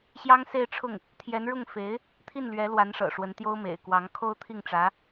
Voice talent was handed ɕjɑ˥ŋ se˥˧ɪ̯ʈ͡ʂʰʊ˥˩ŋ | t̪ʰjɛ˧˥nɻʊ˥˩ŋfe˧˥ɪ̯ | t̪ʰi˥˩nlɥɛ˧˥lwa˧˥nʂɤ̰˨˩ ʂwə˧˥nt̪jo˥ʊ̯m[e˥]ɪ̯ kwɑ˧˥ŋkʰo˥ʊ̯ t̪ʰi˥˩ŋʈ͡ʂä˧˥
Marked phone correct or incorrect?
incorrect